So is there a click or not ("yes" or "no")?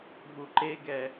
yes